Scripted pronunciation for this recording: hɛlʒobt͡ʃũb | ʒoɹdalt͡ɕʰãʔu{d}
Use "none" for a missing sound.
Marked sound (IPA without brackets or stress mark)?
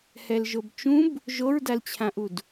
d